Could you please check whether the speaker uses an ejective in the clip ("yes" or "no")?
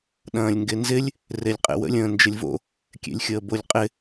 yes